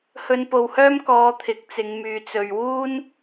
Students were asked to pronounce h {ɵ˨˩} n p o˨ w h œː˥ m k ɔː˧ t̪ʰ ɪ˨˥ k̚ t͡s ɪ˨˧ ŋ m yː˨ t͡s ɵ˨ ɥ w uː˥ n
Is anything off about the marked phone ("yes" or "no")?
yes